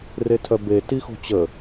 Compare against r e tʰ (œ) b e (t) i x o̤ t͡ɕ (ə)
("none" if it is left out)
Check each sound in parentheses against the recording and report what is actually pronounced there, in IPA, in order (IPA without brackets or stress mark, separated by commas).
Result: œ, t, ə